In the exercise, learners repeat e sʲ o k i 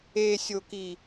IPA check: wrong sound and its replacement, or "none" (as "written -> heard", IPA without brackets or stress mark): none